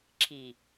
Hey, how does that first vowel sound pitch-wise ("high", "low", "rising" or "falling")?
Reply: low